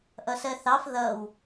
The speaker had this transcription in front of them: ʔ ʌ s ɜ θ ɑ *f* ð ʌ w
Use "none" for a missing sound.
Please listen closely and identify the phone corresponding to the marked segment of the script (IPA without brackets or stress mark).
f